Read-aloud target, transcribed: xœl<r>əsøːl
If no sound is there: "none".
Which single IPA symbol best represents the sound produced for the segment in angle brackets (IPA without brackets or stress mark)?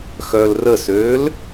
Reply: r